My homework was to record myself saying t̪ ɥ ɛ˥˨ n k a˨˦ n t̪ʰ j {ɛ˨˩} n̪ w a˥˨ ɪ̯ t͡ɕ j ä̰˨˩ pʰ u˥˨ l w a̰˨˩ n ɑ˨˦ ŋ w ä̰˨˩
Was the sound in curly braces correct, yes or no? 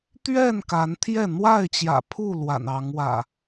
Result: no